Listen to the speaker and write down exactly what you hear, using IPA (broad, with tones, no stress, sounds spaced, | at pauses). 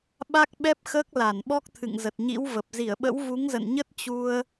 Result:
ɓ a˦˥ k̚ ɓ ɛ˦˥ p̚ x əː˦˥ k̚ l a˧˩ n ɓ ɔ˦˥ k̚ t̪ʰ ɨ̰˧˨ ŋ z ə˨˩ t̚ ɲ ḭ˧˥ w v ə˨˩ p̚ z i˧˩ ə̯ ɓ ə̰˧˥ w v u˨˦ ŋ z ə̰˧˨ n ɲ ə˦˥ t̚ t͡ɕ u˧ ə̯